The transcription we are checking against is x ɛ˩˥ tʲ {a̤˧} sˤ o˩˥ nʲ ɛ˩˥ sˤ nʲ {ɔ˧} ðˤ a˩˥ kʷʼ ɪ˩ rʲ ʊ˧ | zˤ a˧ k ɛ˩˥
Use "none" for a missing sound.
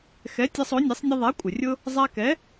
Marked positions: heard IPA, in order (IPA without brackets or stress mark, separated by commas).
a˧, ʌ˧